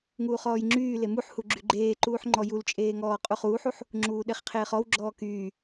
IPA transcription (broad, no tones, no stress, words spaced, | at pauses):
ŋuːχɔːjŋ͡ǁyː lemuħhu ɡ͡ǁyɡ͡ǃeːǃuːħ ŋ͡ǃɔjult͡ʃʼeːŋɔː qʼuχuːħuħ | ŋ͡ǁuːɗeχqʰeːχɔw ɡ͡ǁɔːkyː